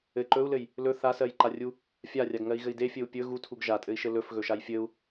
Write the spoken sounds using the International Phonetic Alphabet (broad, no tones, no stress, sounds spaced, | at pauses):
ɘ ǃ ɵ u̯ l ɘ j | l ɵ θ a s ɜ j ǃ a rʲ u | fʲ a rʲ a ɡ ŋ ɜ i̯ ɣ ɘ i̯ d e fʲ ɘ u̯ pʲ ɵ ɣ u tʰ u ɡ ʒ a tʼ ɘ i̯ ʃ ɘ l ɵ f ɣ ɵ ʃ a j fʲ ɘ u̯